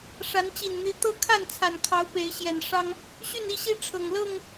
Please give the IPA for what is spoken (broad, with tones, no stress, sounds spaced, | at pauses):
ʂ a˨˦ n t͡ɕ i˨˩ n n̪ i˨˦ t̪ ɤ˦ kʰ a˥˨ n t͡sʰ a˨˩ n kʰ ɑ˨˦ ʊ̯ p e˨˦ ɪ̯ ɕ j ɛ˨˩ n ʂ ɑ˦ ŋ | ɕ y˥˨ n i˥˨ ɕ i˦ ʈ͡ʂʰ ɤ˨˩ ŋ l ɤ˥˨ ŋ